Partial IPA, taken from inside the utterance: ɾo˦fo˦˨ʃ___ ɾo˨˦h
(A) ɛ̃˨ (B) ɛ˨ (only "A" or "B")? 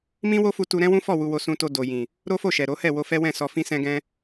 B